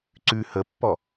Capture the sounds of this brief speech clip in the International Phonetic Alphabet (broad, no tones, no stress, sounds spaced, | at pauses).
ǀ ʉ h ə pː ɔ